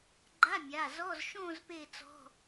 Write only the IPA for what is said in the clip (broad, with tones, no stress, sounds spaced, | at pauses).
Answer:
ɡ͡ǃ a˧˥˧ mʲ a˩˧˩ z ɔ˧˥˧ z ʃ õː˥˧ z p e˥˧ t͡s ɔ̤˧˥˧